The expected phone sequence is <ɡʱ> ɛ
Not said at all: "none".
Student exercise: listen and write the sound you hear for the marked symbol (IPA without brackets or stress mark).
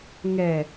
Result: ŋ